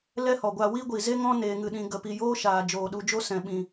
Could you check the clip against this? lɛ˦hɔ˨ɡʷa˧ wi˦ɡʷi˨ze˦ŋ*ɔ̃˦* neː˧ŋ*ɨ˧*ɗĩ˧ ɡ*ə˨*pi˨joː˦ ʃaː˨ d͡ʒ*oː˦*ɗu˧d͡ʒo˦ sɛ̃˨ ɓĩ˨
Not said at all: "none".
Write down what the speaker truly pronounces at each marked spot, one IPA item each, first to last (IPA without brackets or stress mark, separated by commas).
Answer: ɔ̃˦, ɨ˧, ə˨, oː˨